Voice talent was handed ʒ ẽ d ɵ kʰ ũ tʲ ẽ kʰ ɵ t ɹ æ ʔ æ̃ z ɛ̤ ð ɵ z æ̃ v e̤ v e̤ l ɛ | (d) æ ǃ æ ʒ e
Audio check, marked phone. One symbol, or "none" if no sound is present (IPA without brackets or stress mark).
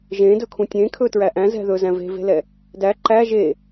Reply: d